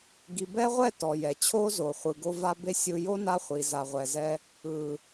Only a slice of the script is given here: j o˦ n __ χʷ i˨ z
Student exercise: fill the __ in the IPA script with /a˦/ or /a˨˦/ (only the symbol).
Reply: a˦